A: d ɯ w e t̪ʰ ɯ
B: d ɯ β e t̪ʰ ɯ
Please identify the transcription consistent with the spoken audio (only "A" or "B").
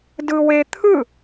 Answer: A